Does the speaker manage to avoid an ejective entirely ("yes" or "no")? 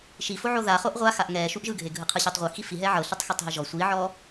yes